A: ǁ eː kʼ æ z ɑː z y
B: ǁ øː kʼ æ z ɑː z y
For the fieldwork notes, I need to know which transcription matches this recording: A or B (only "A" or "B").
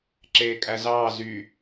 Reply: A